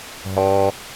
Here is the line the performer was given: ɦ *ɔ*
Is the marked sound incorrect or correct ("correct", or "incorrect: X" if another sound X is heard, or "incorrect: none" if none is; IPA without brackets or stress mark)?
correct